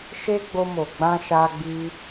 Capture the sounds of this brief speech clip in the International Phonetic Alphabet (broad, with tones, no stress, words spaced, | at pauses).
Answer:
ʃe˧ ɡ͡bo˧mo˨ ɡ͡bã˧ʃa˧ ɡ͡bi˧